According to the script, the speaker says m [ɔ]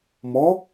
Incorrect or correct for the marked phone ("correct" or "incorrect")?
correct